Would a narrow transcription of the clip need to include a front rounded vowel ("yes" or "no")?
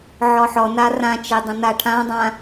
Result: no